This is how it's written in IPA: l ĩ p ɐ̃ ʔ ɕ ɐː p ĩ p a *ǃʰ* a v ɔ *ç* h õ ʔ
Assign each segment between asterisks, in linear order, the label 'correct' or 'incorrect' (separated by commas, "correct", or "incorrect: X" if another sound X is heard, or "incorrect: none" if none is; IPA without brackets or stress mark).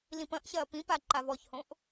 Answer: incorrect: ǃ, correct